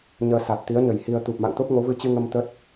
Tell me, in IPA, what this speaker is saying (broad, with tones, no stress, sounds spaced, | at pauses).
ɲ əː˧ s a˨˩ t̚ t̪ i˨˦ ə̯ ɲ ə˧˩ j h i˧ ə̯ t̪ u˨˩ p̚ m a̰˧˨ ŋ t̪ o˦˥ p̚ ŋ o˨˦ v ɨ˧ t͡ɕ ɨ˧ ŋ ə˧ m t̪ ə˦˥ t̚